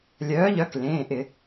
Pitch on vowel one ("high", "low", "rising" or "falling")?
rising